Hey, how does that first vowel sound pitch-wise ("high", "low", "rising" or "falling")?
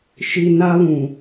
high